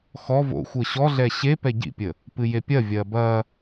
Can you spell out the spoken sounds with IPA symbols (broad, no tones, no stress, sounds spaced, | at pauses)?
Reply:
x ɔ v o̰ xʷ əː ɕ ɔ ɮ ɛ ɕ e p ɛ ɟ ḭ pʲ ə | p ɨ j e pʲ ɐ vʲ ɐː b ɐ